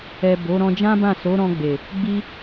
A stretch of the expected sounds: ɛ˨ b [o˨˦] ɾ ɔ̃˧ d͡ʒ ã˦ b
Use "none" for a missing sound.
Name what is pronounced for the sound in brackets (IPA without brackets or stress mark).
o˨˦